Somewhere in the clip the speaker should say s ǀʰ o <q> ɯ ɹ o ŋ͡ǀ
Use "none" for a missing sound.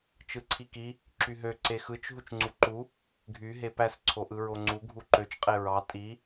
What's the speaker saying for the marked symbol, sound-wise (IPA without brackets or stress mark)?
ʔ